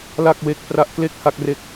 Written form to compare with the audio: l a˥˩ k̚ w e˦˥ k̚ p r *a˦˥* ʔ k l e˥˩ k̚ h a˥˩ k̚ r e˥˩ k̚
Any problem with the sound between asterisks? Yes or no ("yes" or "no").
no